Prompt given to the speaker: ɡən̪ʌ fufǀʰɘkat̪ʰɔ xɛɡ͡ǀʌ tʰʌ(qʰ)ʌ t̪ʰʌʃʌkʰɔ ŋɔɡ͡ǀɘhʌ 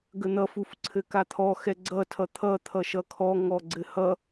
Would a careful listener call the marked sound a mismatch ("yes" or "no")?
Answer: yes